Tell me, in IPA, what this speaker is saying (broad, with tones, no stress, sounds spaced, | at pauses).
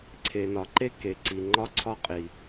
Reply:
ǀʰ e˩ n ɒ˩ ǃ e˥ k e˩ ǀ i˩ ŋ͡ǃ ɒ˥ ǀʰ ɒ˥ qʼ i˩